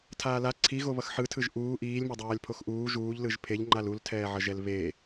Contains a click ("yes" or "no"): yes